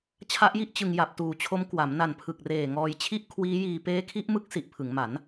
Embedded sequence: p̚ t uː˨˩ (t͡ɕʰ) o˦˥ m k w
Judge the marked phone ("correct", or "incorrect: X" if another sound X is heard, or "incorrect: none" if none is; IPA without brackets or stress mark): correct